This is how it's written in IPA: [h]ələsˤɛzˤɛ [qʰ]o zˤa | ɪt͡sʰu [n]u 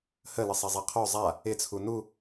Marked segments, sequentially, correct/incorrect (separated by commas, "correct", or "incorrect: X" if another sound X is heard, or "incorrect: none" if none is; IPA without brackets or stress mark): correct, correct, correct